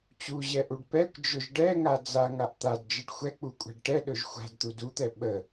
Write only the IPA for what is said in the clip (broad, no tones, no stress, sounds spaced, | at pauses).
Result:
t͡ɕ u ʑ ɛ ʔ u ɖ p ɛ kʷ d͡ʒ ɵ ʒ ɖ ɛ ŋ a d͡z a ŋ a ʔ t̪ a d d͡ʒ ə ɖ xʷ ɛ k͡p u kʷʼ a̤ ɖ ʈ ɛ ɗ ɵ ʒ xʷ a̤ d t̪ u d u t̪ ɛ ɓ ə